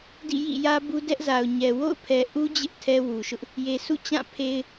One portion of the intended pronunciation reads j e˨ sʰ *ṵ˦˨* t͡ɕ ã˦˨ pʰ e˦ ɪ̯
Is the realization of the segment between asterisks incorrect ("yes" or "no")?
no